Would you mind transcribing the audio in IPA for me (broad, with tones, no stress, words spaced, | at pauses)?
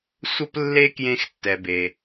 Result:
sʷə˦plːe˦ kjẽ˦xtːɛ˨be˨